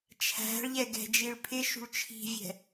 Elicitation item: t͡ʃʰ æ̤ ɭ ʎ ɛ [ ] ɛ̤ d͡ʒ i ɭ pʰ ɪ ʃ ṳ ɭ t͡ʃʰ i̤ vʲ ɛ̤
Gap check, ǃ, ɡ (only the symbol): ɡ